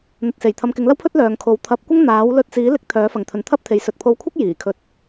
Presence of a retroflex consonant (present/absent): absent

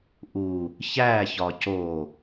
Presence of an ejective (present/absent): absent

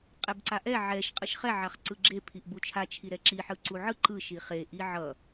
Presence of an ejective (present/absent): present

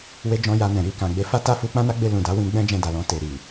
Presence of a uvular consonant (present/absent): absent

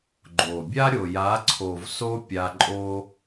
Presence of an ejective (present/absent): present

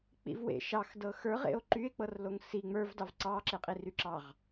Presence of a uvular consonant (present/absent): present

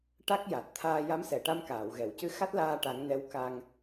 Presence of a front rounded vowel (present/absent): absent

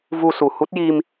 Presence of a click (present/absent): absent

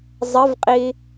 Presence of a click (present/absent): absent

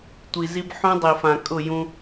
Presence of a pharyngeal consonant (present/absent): present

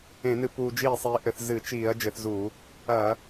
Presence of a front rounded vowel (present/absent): absent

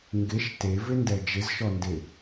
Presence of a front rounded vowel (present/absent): absent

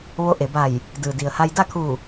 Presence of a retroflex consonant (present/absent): absent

